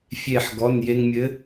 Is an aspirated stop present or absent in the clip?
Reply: absent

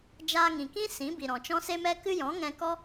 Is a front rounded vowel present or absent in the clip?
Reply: absent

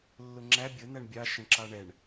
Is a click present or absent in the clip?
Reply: present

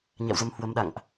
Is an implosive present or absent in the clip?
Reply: present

